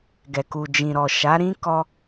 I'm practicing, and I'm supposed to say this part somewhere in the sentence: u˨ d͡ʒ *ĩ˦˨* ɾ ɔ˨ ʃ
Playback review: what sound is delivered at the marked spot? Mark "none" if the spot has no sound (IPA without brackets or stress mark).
ĩ˨